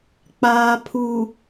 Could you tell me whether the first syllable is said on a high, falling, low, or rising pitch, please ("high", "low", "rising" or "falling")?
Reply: low